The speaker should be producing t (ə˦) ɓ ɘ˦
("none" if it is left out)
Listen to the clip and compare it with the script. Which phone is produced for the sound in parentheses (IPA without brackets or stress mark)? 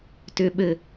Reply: ʏ˦